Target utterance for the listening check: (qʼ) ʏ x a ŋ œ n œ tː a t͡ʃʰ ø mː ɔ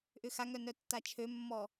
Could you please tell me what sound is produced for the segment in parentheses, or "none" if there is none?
ʔ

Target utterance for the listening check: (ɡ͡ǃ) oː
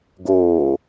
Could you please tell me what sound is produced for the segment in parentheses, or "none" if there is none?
ɡ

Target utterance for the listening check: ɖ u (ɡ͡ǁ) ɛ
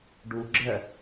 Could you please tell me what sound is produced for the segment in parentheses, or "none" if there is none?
ɡ͡ǁ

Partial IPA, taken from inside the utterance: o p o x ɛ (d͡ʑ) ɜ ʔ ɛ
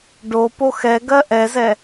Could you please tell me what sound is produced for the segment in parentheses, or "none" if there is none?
ɡ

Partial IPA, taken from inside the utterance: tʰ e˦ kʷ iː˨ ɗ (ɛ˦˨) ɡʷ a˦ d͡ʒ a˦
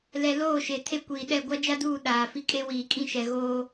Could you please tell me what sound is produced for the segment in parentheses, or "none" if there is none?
ɛ˦˨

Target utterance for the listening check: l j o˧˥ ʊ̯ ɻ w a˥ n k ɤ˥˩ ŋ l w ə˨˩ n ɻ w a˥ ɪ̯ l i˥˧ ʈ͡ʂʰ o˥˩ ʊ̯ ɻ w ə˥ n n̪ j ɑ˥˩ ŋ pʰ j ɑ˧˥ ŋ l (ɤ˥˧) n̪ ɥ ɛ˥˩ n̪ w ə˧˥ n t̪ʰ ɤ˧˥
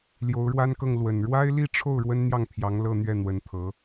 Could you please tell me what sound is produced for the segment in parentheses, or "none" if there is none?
ɤ˥˧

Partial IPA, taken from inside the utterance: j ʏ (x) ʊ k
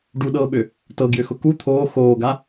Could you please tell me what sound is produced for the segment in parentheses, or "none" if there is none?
x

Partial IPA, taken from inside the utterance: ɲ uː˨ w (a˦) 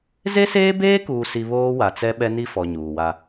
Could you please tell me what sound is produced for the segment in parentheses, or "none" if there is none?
a˦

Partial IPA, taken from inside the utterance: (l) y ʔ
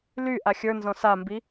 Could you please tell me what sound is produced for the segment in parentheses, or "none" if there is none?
l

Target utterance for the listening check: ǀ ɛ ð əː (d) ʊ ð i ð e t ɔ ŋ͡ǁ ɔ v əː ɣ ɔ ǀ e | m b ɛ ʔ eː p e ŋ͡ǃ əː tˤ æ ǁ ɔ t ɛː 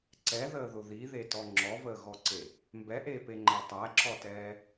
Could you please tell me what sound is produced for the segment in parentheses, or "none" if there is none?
ð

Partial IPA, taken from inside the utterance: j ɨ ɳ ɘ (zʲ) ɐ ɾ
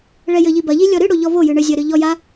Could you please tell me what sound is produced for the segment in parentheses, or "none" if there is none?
zʲ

